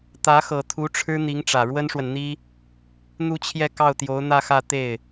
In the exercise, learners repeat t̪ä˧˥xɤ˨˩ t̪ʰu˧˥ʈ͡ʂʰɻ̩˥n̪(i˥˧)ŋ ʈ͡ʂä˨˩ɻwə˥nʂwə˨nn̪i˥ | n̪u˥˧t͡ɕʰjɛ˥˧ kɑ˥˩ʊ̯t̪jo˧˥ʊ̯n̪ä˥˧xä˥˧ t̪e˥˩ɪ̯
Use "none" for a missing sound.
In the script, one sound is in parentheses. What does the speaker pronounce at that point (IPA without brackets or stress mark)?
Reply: i˧˥